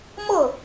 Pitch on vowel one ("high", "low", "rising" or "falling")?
falling